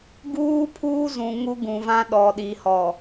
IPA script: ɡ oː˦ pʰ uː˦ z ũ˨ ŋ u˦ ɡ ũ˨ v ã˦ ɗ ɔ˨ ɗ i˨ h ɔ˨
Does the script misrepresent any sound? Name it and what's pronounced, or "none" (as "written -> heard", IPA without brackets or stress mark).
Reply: oː˦ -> uː˦